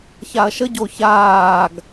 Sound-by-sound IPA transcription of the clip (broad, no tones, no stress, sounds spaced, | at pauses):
ç a ɐ̯ ʃ ə ɟ o ç aː ɡ